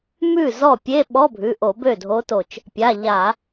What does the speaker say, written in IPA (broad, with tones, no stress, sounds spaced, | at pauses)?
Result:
m ʉ˥˩ z ɔ˥˩ pʲ e˧˥˧ ɓ ɔ˧˥˧ bʱ ʉ˩˧˩ ʔ o˧˩˧ b ø˥˩ dʱ o˧˥ t o˧˩ t͡ʃ | pʲ a˩˧˩ ʎ a˧˩˧